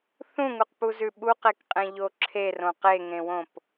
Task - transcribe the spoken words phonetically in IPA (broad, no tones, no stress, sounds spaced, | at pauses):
θ ũ ŋ u q p u z ʉ ɓ u q e k qʼ ẽ ʎ o ǁʰ e r õ q e ŋ ẽ w õ p